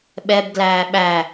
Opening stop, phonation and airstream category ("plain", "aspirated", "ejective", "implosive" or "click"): implosive